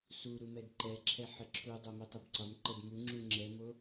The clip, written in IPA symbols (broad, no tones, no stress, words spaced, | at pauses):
su ɾumɛdǃɛǁʰɛ ħəǁʰudˤo mutˤəbǀɒmǃəd muŋ͡ǁu ŋ͡ǁɛmo